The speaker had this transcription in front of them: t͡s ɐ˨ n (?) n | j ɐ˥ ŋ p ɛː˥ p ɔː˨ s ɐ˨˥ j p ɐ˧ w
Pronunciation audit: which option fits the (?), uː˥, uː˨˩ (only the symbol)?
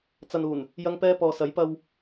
uː˨˩